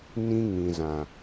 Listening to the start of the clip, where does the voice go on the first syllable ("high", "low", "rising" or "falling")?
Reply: high